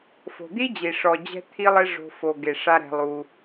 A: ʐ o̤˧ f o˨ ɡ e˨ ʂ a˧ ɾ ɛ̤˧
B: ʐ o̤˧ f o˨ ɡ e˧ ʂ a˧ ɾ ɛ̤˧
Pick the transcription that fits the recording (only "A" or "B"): A